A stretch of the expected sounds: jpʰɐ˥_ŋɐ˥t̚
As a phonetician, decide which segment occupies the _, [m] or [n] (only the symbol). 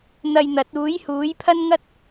n